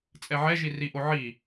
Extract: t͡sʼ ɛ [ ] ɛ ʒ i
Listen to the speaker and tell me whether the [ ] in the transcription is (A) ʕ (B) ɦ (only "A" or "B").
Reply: A